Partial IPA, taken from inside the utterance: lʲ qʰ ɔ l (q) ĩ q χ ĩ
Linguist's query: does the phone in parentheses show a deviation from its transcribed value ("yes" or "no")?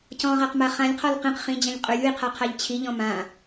no